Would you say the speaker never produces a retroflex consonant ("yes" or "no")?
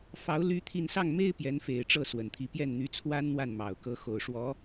no